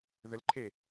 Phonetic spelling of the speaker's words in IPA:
ð ə l ǃʰ e

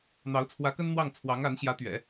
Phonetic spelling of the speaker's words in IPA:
n̪ ɑ˧˥ ʊ̯ t͡sʰ w ä˧˥ k ə˥ n n̪ w ɑ˥˩ ŋ t͡sʰ w ɑ˧˥ ŋ a˧˥ n ɕ j ä˧˥ t̪ ɥ ɛ̰˨˩˦

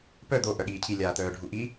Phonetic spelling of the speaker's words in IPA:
p œ d̪ o ʔ œ ɠ iː cʰ i lʲ aː t̪ œː ɖʱ u ʔ i

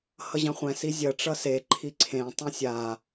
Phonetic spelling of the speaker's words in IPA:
h ʌ ʑ ã χʷ ɛ̃ s i zʲ ɐ ʈ͡ʂ ʌ s e ǃʰ i ǀʰ ẽ tˤ ɐ̃ sʲ a

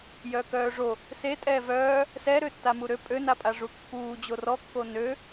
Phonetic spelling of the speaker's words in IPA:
j œ k œː ʐ o | s e tʼ ɛː v œː | s ɛ ɾ ø tː a m u ɾ ø pʼ ø n a pʼ a ʐ u kː uː d͡ʑ o r ɔ kː o n ø

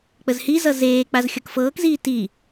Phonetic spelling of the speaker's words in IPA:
k͡p ə z h i z ʌ z eː k͡p a z xʲ ʌ k f ɤː k z iː t i

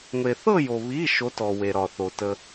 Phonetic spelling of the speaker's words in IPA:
ŋʷ e˨ θ ɤ˥˧ j o˨ β i˧˥˧ ʃ o˧˥ t ɔ˨ w e˨ ɾ ɒ˨ θ o˨ t ə˨

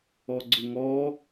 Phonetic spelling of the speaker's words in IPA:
ɔ ɡ͡ǀ ʊ ŋ ɔ

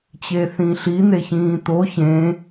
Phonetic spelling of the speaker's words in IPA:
t͡ɕ e θ ĩ ɬ i n̪ e ç ĩː t̪ o ç ẽ

